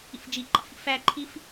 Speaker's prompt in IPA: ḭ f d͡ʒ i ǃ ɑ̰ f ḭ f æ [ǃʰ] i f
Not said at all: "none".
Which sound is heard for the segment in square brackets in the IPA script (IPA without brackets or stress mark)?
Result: ǃʰ